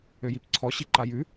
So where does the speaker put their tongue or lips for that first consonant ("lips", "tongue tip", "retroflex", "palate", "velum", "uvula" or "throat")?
palate